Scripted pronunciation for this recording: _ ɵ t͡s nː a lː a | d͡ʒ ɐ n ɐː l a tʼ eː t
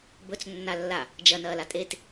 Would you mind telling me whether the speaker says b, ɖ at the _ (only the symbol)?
b